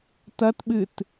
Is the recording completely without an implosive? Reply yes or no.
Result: no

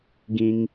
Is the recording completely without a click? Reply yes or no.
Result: yes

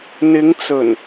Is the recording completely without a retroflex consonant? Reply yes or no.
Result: yes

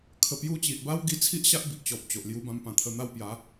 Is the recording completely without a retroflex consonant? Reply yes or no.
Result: yes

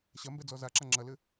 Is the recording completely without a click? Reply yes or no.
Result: no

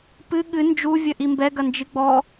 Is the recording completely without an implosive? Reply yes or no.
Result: no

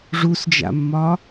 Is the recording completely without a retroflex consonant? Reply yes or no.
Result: no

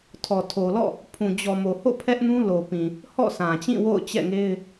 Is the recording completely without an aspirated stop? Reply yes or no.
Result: no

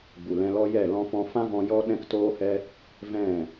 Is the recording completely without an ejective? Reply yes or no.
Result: yes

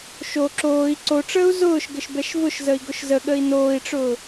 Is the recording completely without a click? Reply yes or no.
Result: no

